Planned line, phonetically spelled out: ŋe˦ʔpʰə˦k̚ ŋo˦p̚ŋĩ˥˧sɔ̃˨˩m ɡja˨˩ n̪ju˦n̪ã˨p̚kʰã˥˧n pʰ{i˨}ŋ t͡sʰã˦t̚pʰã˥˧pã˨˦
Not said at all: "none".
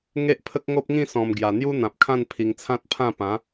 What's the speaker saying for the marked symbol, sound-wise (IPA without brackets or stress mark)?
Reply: i˧